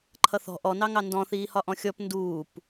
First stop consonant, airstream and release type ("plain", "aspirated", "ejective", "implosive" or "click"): click